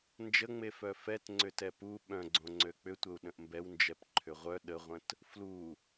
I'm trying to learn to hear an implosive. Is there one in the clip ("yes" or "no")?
yes